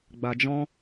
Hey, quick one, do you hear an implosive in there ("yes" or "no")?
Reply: no